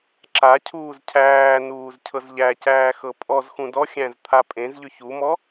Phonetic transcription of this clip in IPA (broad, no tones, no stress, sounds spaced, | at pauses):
ǁ a cʰ uː z cʰ æː n uː z cʰ ɤ z ʎ æ c æː x ɤ pʼ ɔ z x ũ d ɔ xʲ æ̃ z t̪ʰ a pʼ ẽ z ʎ ʏ ç u m ɔ